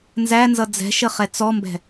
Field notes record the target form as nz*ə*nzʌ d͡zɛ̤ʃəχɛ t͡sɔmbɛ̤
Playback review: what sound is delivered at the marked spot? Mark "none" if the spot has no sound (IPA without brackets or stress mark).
æ